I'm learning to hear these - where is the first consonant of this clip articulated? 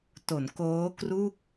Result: tongue tip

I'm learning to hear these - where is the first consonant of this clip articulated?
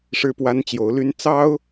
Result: retroflex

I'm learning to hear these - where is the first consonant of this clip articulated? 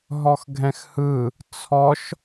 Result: throat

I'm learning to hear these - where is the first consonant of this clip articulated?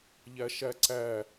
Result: palate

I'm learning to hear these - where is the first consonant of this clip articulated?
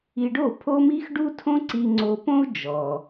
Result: retroflex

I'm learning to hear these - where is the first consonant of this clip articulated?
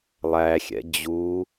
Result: tongue tip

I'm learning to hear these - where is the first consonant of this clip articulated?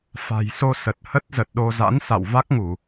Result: lips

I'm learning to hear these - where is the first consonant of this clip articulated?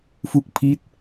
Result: lips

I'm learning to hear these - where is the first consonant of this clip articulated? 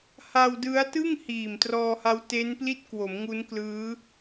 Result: throat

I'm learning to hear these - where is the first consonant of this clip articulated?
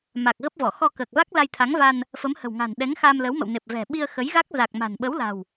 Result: lips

